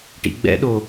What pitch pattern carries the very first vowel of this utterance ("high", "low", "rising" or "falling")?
low